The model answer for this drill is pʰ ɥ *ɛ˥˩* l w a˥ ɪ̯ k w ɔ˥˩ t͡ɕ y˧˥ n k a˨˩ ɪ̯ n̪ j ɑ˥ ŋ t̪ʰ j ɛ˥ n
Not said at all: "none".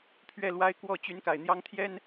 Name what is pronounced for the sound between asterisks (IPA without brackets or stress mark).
ɛ˥˩